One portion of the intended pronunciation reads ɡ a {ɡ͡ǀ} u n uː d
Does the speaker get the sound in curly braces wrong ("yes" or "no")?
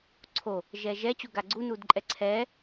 no